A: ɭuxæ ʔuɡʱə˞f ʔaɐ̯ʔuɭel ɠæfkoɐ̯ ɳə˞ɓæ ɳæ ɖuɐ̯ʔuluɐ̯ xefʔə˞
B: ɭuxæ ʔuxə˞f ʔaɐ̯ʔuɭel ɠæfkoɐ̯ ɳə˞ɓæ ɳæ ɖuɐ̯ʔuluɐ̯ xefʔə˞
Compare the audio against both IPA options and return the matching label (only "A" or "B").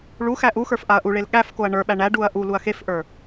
B